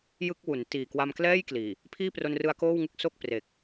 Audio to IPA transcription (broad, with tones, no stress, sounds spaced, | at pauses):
j ɯ˥˩ k̚ w u˩˦ n t iː˨˩ k w a˧ m k l ɛː˥˩ j k l iː˨˩ | pʰ iː˥˩ p r o˧ n r ɯ˧ a̯ k oː˥˩ w ŋ ɯ˥˩ k̚ s o˥˩ k̚ p r e˨˩ k̚